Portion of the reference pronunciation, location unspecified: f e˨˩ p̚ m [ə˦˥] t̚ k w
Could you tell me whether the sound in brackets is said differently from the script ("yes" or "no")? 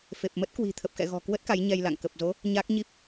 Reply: no